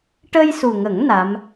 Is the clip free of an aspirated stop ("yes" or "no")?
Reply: yes